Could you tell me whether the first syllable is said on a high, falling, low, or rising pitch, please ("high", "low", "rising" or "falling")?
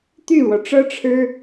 falling